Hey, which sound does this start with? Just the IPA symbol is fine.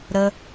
ɾ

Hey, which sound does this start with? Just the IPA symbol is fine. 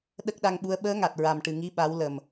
ɗ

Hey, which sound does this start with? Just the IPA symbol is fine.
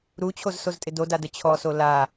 ɾ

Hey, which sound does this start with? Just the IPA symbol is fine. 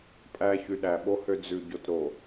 pʼ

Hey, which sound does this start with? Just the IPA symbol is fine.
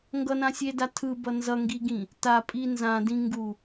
ŋ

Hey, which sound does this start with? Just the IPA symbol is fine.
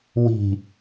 w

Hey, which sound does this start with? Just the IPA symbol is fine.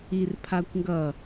i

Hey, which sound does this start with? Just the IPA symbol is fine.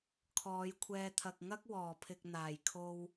kʰ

